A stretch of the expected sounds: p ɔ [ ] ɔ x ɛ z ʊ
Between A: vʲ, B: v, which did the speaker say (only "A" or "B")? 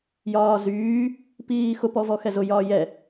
B